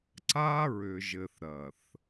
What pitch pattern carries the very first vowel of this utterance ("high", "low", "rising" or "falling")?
high